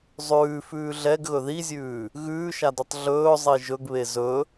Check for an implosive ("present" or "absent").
absent